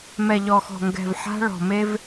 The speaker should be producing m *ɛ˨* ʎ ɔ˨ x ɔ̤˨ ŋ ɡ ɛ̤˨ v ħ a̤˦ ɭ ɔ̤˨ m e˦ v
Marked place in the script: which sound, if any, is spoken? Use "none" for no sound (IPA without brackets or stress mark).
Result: ɛ˨